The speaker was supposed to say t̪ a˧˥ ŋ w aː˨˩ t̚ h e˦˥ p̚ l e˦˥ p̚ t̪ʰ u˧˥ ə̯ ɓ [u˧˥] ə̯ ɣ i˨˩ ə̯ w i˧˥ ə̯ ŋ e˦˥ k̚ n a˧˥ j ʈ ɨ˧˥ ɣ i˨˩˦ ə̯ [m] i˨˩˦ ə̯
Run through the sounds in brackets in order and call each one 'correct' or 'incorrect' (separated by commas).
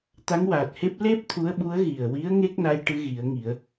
correct, incorrect